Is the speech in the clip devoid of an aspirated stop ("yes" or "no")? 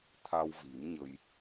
no